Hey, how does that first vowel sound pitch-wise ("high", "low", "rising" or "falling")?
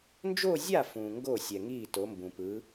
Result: falling